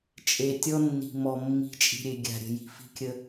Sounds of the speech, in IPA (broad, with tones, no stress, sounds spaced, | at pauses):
t͡ʃʼ e˨ tʲ ɔ˦ nː i̤˨ m ɔ˨ mː i̤˨˦ t͡ʃʼ i̤˨ ɾʲ e˨ ɡʲ a̤˨ ɾʲ ə̤˨ j i̤˨ f i̤˦ kʲ ə˦